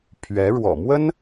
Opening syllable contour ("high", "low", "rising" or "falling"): rising